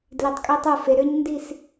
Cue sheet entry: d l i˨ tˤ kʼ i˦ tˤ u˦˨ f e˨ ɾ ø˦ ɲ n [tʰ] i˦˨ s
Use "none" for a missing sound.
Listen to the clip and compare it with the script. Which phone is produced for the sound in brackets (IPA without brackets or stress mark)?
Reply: d